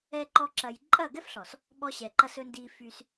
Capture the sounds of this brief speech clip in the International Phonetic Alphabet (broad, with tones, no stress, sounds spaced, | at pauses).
ɛ˦ ǃ ɔ˦ ǁ ɐ˧ j ǃʼ ɐ˦˨ ɡ ɛ˦ f ɬ ɔ˨ s | ɓ ɔ˧ ɕ ɛ˨ ǃ ɐ˧ s ɵ˧ n d i˧ f y˧ s